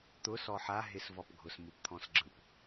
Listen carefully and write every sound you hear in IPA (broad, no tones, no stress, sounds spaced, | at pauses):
t̪ ʊ s ɔ ħ a ɦ ɪ s v ɔ p ɡʱ ʊ s m ɯ p t̪ʰ ɔ̃ s ɡ͡ǁ ɯ p